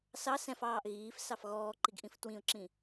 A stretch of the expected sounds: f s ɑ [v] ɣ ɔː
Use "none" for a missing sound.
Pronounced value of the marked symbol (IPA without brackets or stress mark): f